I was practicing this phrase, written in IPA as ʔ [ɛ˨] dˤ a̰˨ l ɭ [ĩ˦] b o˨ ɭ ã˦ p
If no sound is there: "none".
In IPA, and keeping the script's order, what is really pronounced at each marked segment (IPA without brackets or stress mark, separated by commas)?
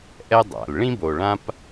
ɛ˦, ĩ˦